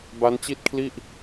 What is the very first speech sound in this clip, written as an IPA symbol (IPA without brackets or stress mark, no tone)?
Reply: b